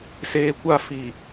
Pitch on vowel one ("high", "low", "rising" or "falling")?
low